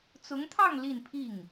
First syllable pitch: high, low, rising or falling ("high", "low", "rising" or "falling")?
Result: rising